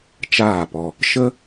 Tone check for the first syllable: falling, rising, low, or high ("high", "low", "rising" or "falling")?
falling